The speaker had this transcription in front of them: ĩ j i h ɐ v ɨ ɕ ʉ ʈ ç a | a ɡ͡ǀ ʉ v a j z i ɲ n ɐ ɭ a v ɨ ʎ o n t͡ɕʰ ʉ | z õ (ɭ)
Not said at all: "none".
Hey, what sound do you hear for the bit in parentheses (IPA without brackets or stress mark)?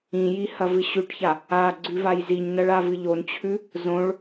ɭ